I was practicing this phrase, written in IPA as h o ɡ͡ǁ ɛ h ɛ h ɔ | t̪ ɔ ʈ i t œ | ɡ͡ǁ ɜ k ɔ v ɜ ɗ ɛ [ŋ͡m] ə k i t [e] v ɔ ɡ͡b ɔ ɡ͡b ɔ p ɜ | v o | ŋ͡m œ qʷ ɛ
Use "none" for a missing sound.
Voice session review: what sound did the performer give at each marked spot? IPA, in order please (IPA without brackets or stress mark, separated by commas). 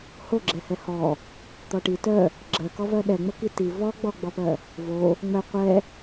ŋ͡m, i